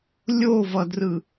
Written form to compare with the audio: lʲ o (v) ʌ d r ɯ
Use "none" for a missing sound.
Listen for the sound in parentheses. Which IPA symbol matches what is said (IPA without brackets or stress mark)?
v